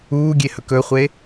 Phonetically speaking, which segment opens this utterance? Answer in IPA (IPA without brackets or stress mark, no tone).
uː